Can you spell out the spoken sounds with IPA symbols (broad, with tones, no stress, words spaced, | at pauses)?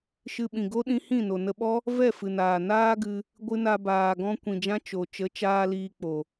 ʃɨ˧ɓĩ˨ɡo˦ ɗĩ˦ hĩ˦˨no˨nə˧ ɓɔ˦ | vɛ˦˨fɨ˨naː˨ naː˦ɡɨ˧ | ɡʷɨ˧na˧ baː˧ɡɔ̃˦ kʷĩ˨d͡ʒã˦ t͡ʃo˨ t͡ʃə˨˦t͡ʃaː˧ liː˧k͡po˨